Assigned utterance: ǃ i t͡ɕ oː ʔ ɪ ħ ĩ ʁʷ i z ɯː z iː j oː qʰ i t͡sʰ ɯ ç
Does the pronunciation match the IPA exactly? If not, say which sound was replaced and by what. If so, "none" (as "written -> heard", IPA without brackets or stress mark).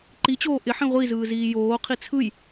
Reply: ç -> j